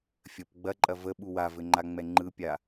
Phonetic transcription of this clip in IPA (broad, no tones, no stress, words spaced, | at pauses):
fʲəp ɡ͡bɐǃʼɐ və ɓuwavɘ ŋ͡ǃaŋ͡mɛŋ͡ǃɯpʲa